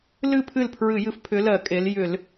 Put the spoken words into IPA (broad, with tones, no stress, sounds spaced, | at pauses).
l ɨ˥˩ pʰ ɨ˥˩ l pʰ ɹ ɨ˧˩˧ j ɨ˨˥ f pʰ ʏ˨˥ l ɜ˧˩˧ kʼ e˩˧ l j ʏ˧˩˧ l